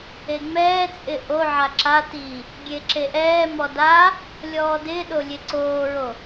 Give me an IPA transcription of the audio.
eŋ͡mɛːt͡sʼɪ ʔoʕa ǁati | ɡʲeǁeʔɛːmɔ da | lʲɔːdɪːɗo lʲeǀoːɹo

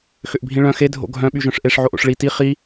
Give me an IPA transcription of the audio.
xʏʔbʱĩɭœ̃ xe dʱo̰ɡʱœ̃ ɓyʒœ̃ʂʔeʂ ʕoʔo̰ʂɭi ti χi

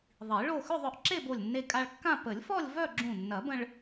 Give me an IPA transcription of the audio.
ðˤi˨˩˦ɭo˥˧ xʏ˥˧ðˤœ˧ʔ ǁe˥˧bo˧˩lʲnːe˧ kʼa˧ɭkːã˥˧ pə˨˩˦lʲfɔ˥˧lʲ vœ˥˧ ɡ͡ǁũ˧˩nːɐ˨˩˦bə̃˧ɭ

